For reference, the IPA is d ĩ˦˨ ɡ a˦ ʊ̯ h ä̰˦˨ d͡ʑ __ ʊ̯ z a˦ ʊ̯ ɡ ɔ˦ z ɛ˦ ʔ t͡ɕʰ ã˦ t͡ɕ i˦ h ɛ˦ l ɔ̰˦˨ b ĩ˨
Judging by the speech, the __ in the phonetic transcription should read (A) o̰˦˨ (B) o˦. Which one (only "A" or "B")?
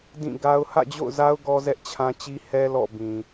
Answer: A